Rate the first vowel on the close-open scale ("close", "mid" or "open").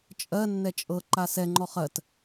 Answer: mid